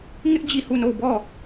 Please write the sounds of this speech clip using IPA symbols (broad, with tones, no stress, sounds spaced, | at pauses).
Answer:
ŋ ɪ˦ ʔ d͡ʑ i˦˨ h u˦˨ n o˦˨ ʊ̯ b ɔ˦˨